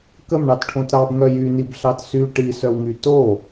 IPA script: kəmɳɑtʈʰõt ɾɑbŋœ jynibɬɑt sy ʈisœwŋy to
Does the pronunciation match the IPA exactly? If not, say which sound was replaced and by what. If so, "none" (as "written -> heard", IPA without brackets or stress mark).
none